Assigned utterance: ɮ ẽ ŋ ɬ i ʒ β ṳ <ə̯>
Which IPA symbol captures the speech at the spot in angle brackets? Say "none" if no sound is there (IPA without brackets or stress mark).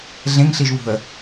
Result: ə̯